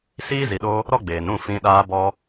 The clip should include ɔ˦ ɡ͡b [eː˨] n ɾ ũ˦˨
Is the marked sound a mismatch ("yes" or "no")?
no